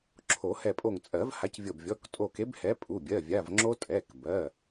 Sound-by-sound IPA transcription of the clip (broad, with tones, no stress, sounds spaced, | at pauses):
ǁʰ o˨˩˦ h ɛ˧˩ pʼ o˧˩ ŋ t͡sʼ ɜ˨˩˦ v h a˨˥ c vʲ ɤ˧˩ b vʲ ɔ˩˧˩ k tʼ o˧˩ k e˨˥ b h ɛ˨˥ pʼ u˩˧˩ bʲ ɜ˩˧˩ vʲ a˩˧˩ v ŋ͡ǁ o˦˥ tʼ ɛ˩˧˩ k b ɜ˩˧˩